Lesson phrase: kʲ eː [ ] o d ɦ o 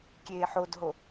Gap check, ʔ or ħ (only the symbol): ħ